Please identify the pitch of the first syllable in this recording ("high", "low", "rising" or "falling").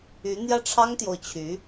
rising